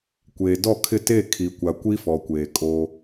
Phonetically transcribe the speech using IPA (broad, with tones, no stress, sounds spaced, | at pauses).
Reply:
kʷ eː˨ d ɔ˦˨ kʰ ɪ˦˨ t e˦˨ kʰ i˨ kʷ a˨ kʷ i˦ f ɔ˨ kʷ eː˨ kʼ o˦